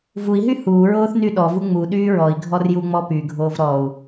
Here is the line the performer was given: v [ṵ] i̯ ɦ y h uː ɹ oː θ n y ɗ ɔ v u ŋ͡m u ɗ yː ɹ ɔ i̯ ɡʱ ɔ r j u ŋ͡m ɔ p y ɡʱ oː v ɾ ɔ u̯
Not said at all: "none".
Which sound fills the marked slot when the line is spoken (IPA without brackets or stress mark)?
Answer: u